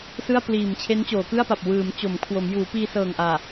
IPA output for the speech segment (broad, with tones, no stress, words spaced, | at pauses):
sɯ˥˩a̯ pliː˨˩m t͡ɕʰe˦˥nt͡ɕoː˩˦kɯ˥˩a̯pa˨˩p̚ wɯː˩˦m t͡ɕo˩˦mkʰwo˩˦m juː˩˦piː˧sɤː˨˩ŋ ʔaː˨˩